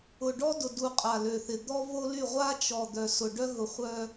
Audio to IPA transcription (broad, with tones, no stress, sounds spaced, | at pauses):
ʊ˨ ɖ ɔ˦ d ʊ˨ d u˨ qʼ a˨ l ø˨ θ ɪ˨ d̪ ɔ˦ v o˦ l y˦˨ ʁʷ a˦ t͡ʃ ɔ˨ d̪ œ˨ s ʊ˨ ɖ œ˦ ɣ ʊ˨ χʷ œ˦